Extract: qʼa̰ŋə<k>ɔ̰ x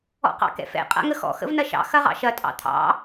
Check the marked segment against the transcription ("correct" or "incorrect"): incorrect